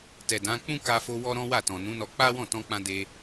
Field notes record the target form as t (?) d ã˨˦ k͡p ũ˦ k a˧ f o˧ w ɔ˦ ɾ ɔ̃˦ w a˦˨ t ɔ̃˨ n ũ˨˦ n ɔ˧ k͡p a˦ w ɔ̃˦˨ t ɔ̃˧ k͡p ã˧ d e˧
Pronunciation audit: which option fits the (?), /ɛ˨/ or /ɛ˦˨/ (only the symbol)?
ɛ˨